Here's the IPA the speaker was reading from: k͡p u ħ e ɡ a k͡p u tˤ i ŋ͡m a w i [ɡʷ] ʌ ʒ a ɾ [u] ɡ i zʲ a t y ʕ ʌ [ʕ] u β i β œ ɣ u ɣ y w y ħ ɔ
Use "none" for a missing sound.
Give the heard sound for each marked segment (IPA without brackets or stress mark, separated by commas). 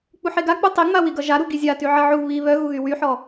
ɡ, u, ʕ